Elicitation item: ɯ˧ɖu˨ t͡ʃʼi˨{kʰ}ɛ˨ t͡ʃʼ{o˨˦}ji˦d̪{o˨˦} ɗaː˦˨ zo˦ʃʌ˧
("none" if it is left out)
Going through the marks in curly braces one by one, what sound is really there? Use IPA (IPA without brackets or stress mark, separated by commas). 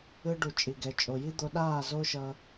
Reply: ɡ, o˨, o˧